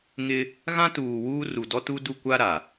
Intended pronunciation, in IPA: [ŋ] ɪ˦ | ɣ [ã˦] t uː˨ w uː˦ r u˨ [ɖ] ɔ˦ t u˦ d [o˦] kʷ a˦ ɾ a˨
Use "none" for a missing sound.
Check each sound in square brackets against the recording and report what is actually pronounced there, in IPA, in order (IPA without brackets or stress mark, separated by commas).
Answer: ŋ, ã˦, d, u˦